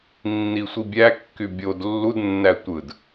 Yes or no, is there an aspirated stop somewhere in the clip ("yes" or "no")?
no